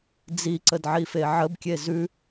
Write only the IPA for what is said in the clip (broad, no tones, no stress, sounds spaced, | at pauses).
d͡z i ǀ ə d ʕ i f e ʕ ə b kʲ e z ʉ